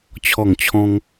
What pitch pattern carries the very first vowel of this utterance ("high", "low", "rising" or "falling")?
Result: falling